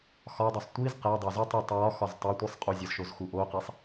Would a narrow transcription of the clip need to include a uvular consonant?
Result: yes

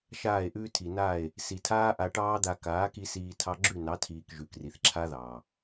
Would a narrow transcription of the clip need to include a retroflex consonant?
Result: yes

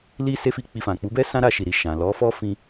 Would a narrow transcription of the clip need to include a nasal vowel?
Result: yes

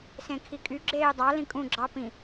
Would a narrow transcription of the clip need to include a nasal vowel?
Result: yes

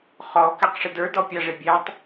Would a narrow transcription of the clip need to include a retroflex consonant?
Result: yes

